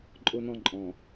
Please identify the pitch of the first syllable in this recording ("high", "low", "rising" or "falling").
high